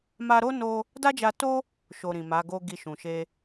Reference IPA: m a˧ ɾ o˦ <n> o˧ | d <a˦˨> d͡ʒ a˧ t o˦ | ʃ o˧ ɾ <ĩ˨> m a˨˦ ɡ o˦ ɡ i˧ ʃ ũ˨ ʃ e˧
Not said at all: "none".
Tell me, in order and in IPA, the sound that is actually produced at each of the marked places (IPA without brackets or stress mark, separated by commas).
n, a˦, ĩ˨